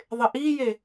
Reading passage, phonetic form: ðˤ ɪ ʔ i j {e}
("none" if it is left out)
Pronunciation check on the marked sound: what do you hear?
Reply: e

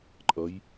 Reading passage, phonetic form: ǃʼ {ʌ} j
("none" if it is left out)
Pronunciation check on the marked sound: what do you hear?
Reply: ʌ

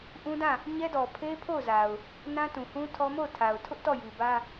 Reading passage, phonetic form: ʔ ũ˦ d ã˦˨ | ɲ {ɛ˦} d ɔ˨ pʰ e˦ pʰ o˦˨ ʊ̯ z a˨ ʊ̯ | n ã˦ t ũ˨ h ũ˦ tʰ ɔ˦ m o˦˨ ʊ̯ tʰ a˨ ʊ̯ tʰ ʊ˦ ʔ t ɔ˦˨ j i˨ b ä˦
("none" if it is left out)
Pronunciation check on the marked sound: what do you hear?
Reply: ɛ˦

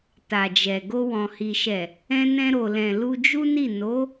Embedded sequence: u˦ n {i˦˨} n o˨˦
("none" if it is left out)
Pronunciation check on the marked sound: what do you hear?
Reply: i˦˨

